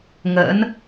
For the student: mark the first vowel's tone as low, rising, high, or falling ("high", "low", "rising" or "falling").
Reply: rising